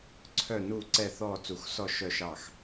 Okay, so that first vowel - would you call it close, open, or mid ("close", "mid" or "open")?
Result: mid